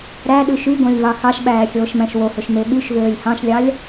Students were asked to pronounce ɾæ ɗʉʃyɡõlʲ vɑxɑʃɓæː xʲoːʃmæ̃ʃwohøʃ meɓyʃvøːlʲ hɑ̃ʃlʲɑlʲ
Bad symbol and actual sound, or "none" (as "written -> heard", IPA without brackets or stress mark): none